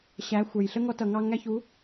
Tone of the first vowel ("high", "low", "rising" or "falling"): rising